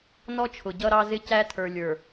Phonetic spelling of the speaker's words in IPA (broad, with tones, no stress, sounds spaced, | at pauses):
n ɔ˦ t͡ʃʰ ʊ˨ ɟ ʌ˦ ɾ ɑ˦ z ɪ˦ c æ˦ tʰ ə˞˨ lʲ ə˞˨